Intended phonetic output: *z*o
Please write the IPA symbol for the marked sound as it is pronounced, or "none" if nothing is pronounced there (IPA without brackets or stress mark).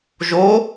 ʒ